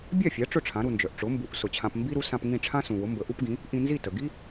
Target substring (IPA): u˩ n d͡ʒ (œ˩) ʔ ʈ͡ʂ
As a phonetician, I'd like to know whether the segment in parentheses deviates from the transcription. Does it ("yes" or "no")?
no